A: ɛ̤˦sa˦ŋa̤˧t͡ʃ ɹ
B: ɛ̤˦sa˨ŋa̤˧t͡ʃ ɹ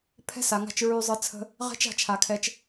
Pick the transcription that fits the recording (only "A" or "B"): B